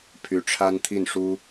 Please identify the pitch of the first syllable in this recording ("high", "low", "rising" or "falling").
rising